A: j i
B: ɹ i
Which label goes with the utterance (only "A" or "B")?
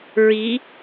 B